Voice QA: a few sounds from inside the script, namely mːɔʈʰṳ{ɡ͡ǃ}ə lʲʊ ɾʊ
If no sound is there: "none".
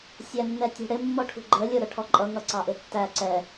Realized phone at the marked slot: ɡ͡ǃ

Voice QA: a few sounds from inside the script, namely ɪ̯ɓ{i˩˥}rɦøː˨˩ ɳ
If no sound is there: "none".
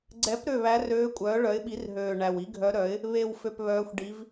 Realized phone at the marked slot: i˩˥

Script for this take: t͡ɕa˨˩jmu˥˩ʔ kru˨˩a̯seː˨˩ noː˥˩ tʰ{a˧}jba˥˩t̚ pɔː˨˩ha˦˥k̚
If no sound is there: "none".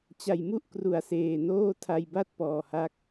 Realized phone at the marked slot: a˧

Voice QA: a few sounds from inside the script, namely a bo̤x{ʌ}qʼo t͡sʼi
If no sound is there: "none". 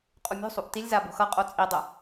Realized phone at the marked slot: ʌ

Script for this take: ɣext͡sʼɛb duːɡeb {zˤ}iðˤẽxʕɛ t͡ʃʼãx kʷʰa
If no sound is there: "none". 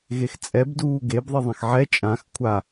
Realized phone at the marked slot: ðˤ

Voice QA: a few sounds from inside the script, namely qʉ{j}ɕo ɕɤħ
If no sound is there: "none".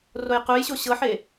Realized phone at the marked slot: j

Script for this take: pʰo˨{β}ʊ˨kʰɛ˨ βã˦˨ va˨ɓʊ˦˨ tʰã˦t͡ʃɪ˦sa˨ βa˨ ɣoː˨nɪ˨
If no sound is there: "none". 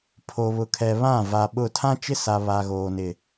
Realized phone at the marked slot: β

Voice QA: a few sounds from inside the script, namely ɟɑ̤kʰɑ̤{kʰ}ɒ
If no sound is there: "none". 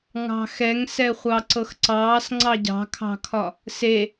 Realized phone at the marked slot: kʰ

